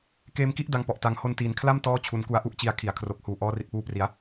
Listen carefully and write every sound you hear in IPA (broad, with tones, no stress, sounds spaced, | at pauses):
k eː˧ m k i˥˩ ʔ d a˧ ŋ p ɔ˨˩ ʔ t a˨˩ ŋ h o˧ n t iː˩˦ n kʰ l a˥˩ m t ɔː˦˥ t͡ɕʰ u˩˦ n k u˨˩ a̯ ʔ u˥˩ ʔ t͡ɕ i˨˩ a̯ kʰ i˩˦ a̯ kʰ r o˨˩ k̚ h uː˨˩ ʔ ɔː˧ r i˨˩ t̚ p uː˧ p r i˩˦ a̯